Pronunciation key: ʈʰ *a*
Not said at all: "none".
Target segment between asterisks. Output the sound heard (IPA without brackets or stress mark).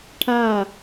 a